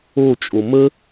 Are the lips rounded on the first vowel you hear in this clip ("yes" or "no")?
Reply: yes